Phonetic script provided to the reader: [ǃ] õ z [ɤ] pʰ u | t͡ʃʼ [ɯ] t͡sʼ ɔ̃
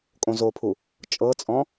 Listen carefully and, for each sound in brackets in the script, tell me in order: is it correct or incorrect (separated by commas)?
incorrect, incorrect, incorrect